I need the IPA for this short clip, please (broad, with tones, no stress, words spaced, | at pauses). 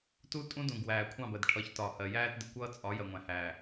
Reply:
tu˦ tʼũ˦dũ˨ɡwæː˨ kʷʰɑ̃˦˨bɜ˨dʈʰʌ˨˦ç tɒː˨hɜ˨ jæː˦tdɪ˨ kʷʌː˦t͡sʼɒ˨˦jɜ˨ŋʷæ̃˨ hæː˨